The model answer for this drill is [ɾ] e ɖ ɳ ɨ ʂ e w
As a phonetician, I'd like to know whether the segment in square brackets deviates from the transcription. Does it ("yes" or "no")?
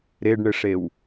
no